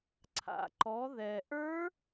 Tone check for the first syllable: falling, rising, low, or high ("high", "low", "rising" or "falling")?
low